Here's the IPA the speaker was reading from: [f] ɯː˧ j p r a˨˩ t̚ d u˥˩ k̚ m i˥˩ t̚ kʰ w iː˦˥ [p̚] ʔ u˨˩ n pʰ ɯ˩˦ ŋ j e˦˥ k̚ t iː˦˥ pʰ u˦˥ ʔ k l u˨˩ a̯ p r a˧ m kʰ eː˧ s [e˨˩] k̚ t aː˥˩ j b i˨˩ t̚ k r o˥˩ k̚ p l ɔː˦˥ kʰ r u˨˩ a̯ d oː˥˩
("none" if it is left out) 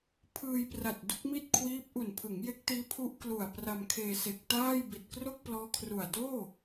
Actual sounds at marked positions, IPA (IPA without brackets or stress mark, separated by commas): pʰ, p̚, e˨˩